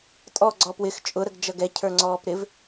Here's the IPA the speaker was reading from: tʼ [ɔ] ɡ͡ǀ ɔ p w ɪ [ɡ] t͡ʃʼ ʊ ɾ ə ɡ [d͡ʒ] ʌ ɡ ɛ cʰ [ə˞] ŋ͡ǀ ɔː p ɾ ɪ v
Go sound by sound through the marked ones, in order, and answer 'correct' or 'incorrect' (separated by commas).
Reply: correct, incorrect, correct, correct